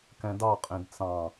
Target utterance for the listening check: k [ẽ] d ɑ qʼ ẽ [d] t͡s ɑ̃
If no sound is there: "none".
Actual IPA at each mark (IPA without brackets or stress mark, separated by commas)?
ɛ̃, d